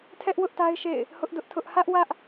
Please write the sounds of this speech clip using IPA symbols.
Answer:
tʰ ɛ˦ ʔ w ʊ˦ ʔ t a˦ ɪ̯ ʃ ḛ˦˨ ɪ̯ | h ʊ˦ ʔ d ʊ˦ ʔ tʰ ʊ˦ ʔ h ä˦ ʔ w ä˦ ʔ

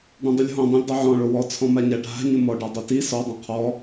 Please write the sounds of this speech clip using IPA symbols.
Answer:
ɖ ɔ̃ dˤ ʊ lʲ ɦ ɔ̃ dˤ ĩ lʲ dˤ a ʕ ɔ̃ ɭ o w ɔ t͡sʰ ɔ̃ m a ɲ a ɖʱ a̤ ɲ ʊ m ɔ ɖ a dˤ o t i s ɔ dˤ ã qʰ ɔ

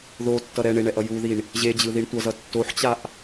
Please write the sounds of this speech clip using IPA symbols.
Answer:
ð o tː ʌ ɾ ɛ ɳ e ɳ ɛ ʔ ʌ j u ð i ɳ | ʑ e d͡ʑ ɯ ð i ɳ tʷ ʌ z ʌ tː o ħ t͡ɕ a ʔ

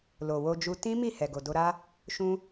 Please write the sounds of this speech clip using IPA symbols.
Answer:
l o˨ w o˧ d͡ʒ u˧ t ĩ˦ m i˦˨ h ɛ˨ ɡ o˨ d o˧ ɾ a˦ | ʃ ũ˧

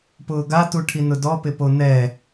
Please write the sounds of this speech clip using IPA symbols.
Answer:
p ʊː ɡ a t u ʈʰ i n ʊ d ɔ p ɪ p o n ɛ

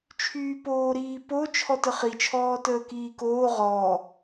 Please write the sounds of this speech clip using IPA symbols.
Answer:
t͡ʃʰ yː p oː ɾ iː p o t͡ʃʰ ɔ t ə χ i t͡ʃʰ ɔː t əː k iː k oː ʁ ɔː

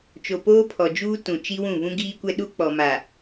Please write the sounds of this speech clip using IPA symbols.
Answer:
t͡ʃ o˨ p oː˦ pʰ ɔ˨ d͡ʒ uː˦ t ũ˨ t͡ʃ i˦ w ũ˦˨ β ũ˦ ɡ iː˦ kʷ ɛ˦ ɗ u˦ k͡p ɔ˨ m a˨

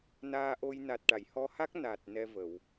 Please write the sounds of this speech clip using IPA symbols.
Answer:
n aː˧ ʔ o˧ j n a˨˩ t̚ ʈ a˨˩˨ j h ɔ˧˥ h a˦˥ k̚ n a˨˩ t̚ n ɛ˧ v ə˨˩˨ w

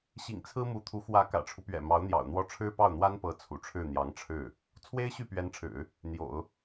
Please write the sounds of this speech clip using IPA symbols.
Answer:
ɕ ḭ˨˩ ŋ t͡sʰ ɹ̩˥ m u˧˥ t̪ʰ u˧˥ x w ä˧˥ k ä̰˨˩ ʈ͡ʂʰ u˦ p ɥ ɛ̰˨˩ m ɑ˧˥ ʊ̯ n̪ j ɑ̰˨˩ ʊ̯ n̪ w ɔ˥˩ ʈ͡ʂʰ ɻ̩˥ p ɑ˥˩ ʊ̯ n̪ w a˥ n p ɤ˧˥ t͡sʰ ṵ˨˩ ʈ͡ʂʰ ɻ̩˥˩ n̪ j ɑ˧˥ ŋ ʈ͡ʂʰ ɻ̩˥˩ | t͡sʰ w e˥ ɪ̯ ɕ y˥˩ p ɥ ɛ˧˥ n ʈ͡ʂʰ ɻ̩˨˩˦ | n̪ j o̰˨˩˦ ʊ̯

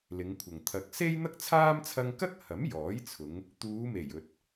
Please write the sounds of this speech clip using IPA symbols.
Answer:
l ɪ˨˧ ŋ kʷʰ ɐ˨ ŋ t̪ʰ ɐ˨ k̚ s e˥ j n̪ ɐ˥ k̚ t͡sʰ aː˥ m t͡sʰ ɐ˧ ŋ k ɐ˥ k̚ h ɐ˨˥ m j ɔː˨˥ j t͡sʰ ʊ˨˧ ŋ | t̪ uː˨˧ m e˨˩ j ɵ˨ t̚

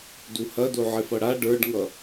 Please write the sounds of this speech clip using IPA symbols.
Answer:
d u h ɐ d o ʕ ɪ f ʌ ɽ a ɖ ə˞ ɖ ŋ ʌ

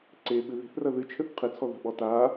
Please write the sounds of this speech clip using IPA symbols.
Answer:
ǀ e ɓ ɨ ð e̤ θ r ɐ ð ɨ t͡ʃʰ ɘ θ qʰ ɨ t͡sʰ ɔ ð a̤ ɓ ɔ t a

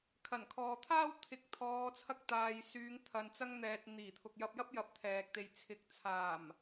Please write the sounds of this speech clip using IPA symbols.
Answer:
kʰ ɐ˨˩ n kʰ ɔː˨ t̪ʰ aː˥ w t̪ʰ ɪ˨˥ k̚ t̪ʰ ɔː˨˧ t͡sʰ ɐ˧ k̚ t̪ aː˨ j s yː˨˧ ŋ t̪ʰ ɐ˨ n t͡s ɐ˧ ŋ n̪ ɛː˨ t̚ n̪ iː˨˩ t̪ʰ ʊ˨ k̚ j ɐ˧ p̚ j ɐ˥ p̚ j ɐ˨ p̚ t̪ʰ ɛː˨ k̚ t̪ e˨ j t͡sʰ ɪ˨ k̚ t͡sʰ aː˨˩ m

